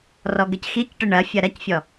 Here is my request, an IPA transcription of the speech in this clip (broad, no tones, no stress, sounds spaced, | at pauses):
r ɔ ɡ ɘ c x i c ʈ ɨ ɳ ɐ fʲ ɐ ɾ ɐ c fʲ ɔ